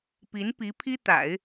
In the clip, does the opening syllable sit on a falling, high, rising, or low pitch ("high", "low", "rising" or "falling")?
rising